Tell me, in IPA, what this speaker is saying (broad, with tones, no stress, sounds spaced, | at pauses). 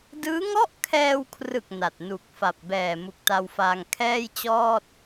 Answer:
d ɯː˦˥ ŋ ɔ˥˩ ʔ kʰ ɛː˧ w kʰ r ɯ˨˩ k̚ n a˨˩ t̚ n u˨˩ k̚ f a˨˩ p̚ b ɛː˨˩ m u˨˩ k̚ t a˧ w f aː˧ ŋ kʰ ɛː˥˩ j t͡ɕ ɔː˥˩ t̚